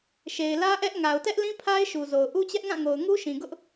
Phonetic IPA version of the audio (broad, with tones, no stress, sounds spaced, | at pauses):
ʃ e˨ ɪ̯ l ä˦ ʔ ɛ˦ ʔ ŋ a˨ ʊ̯ t ɛ˦ ʔ l ĩ˦ pʰ a˦ ɪ̯ ʃ u˨ z o˨ ʊ̯ ʔ u˦ t͡ɕ ɛ˦ ʔ ŋ ã˦˨ ŋ o˨ ʊ̯ ŋ u˦ ʃ ĩ˨ ɡ ʊ˦ ʔ